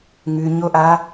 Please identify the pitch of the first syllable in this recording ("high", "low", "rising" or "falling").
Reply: low